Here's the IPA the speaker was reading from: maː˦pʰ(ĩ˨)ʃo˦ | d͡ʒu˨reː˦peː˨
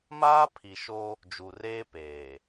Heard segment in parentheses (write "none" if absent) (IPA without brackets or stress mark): i˨